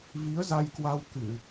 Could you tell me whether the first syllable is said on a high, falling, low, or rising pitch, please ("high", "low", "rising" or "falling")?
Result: rising